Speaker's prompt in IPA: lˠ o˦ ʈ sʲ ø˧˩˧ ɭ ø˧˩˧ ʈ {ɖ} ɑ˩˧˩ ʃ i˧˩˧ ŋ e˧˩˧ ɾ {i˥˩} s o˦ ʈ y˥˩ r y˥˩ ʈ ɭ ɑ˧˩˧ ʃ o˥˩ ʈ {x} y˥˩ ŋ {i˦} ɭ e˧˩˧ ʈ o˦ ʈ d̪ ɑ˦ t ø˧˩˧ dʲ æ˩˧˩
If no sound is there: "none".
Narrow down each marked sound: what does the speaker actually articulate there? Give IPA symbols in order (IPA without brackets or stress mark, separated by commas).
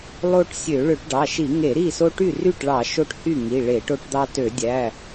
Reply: ɖ, i˥˩, h, i˩˧˩